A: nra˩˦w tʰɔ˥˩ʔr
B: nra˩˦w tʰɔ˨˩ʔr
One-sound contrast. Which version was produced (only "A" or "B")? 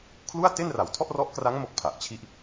A